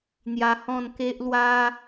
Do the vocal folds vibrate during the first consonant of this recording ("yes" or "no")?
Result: yes